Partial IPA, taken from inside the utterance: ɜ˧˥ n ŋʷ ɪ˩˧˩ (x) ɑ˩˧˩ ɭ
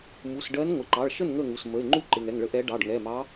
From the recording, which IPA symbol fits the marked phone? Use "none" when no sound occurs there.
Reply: ǃ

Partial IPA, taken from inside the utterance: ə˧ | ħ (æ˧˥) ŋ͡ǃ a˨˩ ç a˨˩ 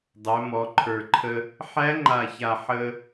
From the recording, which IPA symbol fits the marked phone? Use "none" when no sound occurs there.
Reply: æ˧˥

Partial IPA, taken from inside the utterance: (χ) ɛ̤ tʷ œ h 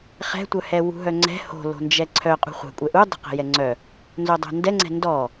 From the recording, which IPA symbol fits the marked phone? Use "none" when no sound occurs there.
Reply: χ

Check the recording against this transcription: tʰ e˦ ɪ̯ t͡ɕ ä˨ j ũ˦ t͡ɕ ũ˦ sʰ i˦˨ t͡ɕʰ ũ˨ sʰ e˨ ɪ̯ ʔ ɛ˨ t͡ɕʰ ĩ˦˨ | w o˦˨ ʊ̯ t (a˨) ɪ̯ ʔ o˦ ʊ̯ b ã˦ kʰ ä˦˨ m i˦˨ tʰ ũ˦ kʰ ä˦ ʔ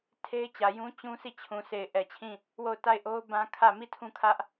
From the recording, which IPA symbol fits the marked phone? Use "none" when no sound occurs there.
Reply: a˦˨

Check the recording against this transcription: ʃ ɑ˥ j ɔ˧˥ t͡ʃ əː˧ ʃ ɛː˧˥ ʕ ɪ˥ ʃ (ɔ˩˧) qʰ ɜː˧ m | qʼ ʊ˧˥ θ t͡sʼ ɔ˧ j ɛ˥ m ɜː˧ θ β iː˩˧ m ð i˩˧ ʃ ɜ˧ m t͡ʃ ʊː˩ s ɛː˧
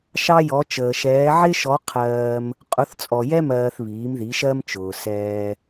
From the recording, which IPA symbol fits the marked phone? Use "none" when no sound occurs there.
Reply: ɔ˧˥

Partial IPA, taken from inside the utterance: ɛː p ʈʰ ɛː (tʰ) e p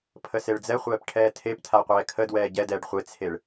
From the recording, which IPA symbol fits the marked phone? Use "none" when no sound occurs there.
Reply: tʰ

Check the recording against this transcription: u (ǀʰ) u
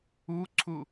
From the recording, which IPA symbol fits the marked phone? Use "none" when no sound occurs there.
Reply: ǀʰ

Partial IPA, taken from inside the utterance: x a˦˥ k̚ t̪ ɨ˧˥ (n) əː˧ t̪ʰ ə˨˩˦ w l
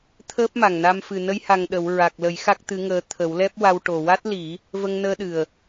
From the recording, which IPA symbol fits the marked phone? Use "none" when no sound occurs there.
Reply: ŋ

